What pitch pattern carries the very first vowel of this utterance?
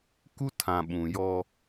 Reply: high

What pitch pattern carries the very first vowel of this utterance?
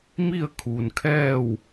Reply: falling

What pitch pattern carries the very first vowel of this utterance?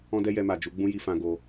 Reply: high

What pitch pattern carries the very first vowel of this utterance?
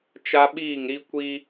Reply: high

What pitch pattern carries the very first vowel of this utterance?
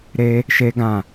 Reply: high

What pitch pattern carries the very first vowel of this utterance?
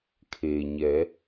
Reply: low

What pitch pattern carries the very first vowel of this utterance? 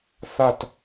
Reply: falling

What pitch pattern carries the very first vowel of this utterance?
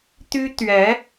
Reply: high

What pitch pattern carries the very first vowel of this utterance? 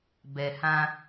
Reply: low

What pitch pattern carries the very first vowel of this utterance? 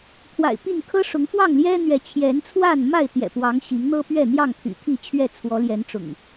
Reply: low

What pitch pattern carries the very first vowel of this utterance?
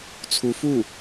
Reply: rising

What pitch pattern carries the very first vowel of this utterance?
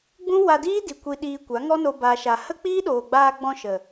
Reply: high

